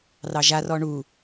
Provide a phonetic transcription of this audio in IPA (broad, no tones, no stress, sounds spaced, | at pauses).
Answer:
r ɑ ʒ a r ɔ ɳ u